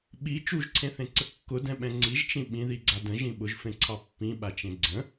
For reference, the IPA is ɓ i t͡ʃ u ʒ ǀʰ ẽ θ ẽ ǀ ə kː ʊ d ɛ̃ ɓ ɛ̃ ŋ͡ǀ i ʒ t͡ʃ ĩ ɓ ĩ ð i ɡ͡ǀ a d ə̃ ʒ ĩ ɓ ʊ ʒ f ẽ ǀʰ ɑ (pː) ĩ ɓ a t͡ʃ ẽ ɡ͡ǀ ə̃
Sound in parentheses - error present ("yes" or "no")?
no